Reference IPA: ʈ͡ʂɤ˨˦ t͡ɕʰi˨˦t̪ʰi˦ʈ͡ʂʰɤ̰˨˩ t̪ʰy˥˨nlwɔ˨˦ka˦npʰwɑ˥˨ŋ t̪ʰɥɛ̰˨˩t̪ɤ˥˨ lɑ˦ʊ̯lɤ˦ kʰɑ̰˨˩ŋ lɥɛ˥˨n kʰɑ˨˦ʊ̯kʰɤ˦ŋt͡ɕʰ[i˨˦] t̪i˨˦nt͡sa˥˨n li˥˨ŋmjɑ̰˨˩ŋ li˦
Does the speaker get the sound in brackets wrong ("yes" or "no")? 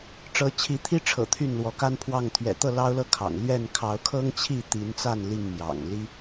yes